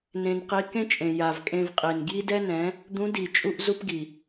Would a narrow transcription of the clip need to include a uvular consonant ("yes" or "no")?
yes